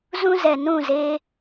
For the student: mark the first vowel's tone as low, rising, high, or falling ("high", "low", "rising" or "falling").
high